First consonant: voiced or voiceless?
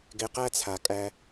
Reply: voiced